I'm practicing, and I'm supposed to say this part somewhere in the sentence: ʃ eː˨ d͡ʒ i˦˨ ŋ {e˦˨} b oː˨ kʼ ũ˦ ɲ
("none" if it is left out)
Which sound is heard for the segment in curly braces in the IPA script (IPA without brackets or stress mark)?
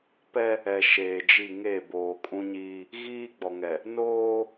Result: e˦˨